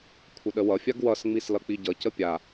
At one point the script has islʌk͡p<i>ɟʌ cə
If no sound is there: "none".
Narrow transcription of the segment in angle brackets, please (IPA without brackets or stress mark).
i